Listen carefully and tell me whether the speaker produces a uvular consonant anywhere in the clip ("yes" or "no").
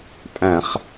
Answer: yes